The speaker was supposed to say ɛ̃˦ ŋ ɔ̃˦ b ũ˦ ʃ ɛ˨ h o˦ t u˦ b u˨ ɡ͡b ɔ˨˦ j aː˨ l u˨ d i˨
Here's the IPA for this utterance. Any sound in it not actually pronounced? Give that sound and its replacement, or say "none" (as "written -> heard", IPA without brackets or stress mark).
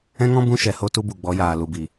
d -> b